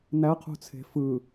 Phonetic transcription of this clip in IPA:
n æ qʰ ṳ t͡sʰ e̤ f ɯ

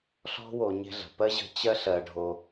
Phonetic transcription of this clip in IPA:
ɬ ɔ̤˦ w o˨ ɲ e̤˦ ɮ ə̤˩ p ɜ˥ ʑ ə̤˦ t͡ɕ ɜ˥ ɬ ɜ˨ ɖʱ o˨

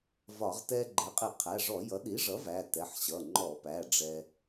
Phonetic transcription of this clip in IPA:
v ɒ˧˩˧ ʁ t ɛ˧ ɡ͡ǃ ɛ˩˥ qʼ ɪ˧˩˧ qʰ æ˩˧˩ ʐ ɔ˧˩˧ j ʌ˩˥ ɗ i˩˥ ʐ ʌ˩˥ v æ˩˧˩ t ɛ˩˧˩ ħ ɕ ʌ˩˧˩ ŋ͡ǃ ɔ˧˩˧ p æ˩˧˩ ɖ͡ʐ ɛ˧

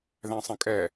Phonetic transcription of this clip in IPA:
ð æ̃ sˤ ə̃ kʼ ɛ

